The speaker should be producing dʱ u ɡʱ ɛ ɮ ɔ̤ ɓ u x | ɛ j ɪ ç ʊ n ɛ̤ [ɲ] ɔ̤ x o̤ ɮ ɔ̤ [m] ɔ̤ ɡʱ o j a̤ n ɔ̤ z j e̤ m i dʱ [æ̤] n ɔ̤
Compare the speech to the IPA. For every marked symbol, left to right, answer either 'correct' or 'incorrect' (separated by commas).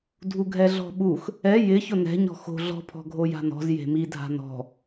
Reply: correct, incorrect, incorrect